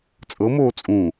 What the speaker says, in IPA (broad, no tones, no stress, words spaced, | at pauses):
t͡sʼɤmoː t͡sʼũ